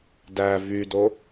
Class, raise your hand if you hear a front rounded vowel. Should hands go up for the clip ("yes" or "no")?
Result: yes